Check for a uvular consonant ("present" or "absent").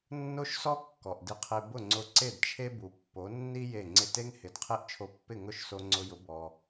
present